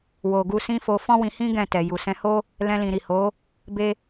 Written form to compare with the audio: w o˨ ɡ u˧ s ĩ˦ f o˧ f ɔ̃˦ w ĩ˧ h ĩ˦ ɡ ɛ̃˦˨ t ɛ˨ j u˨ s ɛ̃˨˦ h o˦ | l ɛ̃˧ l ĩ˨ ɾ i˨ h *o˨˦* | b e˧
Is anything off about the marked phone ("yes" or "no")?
no